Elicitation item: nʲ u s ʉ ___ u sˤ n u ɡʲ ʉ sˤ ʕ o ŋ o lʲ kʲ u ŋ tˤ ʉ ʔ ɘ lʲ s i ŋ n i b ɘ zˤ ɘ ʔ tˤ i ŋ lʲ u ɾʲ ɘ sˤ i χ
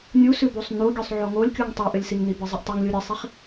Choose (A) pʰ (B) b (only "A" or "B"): B